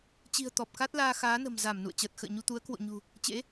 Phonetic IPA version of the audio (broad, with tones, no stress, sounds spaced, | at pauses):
t͡ɕ i̤˨˩ ə̯ t̪ ɔ˨˩ p̚ k a˦˥ t̚ l aː˧ x aː˨˦ n ə̤˨˩ m z a˧˩ m n ṵ˧˨ ə̯ t͡ɕ əː˨˩ t̚ x ə̰ː˧˨ ɲ u˧ t̪ u˨˦ ə̯ k w o̰˧˨ ɲ ṳ˨˩ | t͡ɕ ḛ˧˥